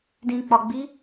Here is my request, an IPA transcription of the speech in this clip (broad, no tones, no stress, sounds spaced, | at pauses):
d ĩ k͡p ɒ ɡ͡b i